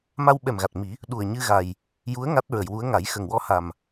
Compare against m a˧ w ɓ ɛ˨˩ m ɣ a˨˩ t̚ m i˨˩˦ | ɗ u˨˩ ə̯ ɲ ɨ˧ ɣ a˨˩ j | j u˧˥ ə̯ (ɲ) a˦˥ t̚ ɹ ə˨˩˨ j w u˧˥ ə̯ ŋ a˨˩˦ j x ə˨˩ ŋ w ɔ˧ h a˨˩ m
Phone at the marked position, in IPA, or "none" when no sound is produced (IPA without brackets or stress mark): ŋ